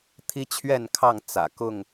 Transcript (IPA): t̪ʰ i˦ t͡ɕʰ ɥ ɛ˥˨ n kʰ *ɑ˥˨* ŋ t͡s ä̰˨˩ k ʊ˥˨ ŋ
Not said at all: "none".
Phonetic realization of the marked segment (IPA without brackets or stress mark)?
ɑ˥˨